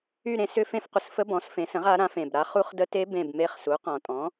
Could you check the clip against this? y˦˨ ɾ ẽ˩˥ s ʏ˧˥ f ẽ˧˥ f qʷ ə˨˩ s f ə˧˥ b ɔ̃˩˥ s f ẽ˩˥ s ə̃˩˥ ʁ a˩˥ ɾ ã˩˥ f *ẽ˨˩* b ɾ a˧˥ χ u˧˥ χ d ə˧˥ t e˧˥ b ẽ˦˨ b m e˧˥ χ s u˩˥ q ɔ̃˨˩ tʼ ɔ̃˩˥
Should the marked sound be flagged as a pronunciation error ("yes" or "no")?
no